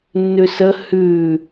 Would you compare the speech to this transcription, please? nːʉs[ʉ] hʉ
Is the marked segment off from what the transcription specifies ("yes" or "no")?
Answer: yes